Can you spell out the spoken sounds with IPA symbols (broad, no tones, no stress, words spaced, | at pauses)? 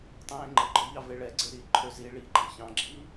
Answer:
tˤẽːŋ͡ǃəɡ͡ǃɔ ʎɑveɭɛɡ͡ǀe ɾiǃʰø zi ɭiɡ͡ǃɑ̃ çɑ̃ɡ͡ǁiː